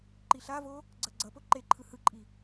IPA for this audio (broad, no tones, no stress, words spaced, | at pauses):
ǃiɬavo | ɡ͡ǀʌɡ͡ǀʌpo ǃeǃʰɯ hɯǃʼi